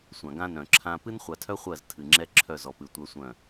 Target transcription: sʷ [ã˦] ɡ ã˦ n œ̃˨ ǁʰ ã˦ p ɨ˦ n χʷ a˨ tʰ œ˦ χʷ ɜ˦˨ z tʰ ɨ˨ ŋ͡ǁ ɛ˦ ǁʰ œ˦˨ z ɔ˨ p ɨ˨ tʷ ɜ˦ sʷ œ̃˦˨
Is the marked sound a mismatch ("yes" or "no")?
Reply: yes